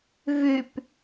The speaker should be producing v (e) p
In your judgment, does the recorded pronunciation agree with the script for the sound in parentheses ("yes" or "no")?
no